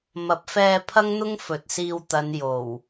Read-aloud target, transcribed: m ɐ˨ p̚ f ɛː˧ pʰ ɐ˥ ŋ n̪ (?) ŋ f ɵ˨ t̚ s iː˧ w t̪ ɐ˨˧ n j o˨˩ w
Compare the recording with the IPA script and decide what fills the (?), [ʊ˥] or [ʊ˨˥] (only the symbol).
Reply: ʊ˥